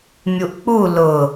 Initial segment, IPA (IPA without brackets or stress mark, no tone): mʲ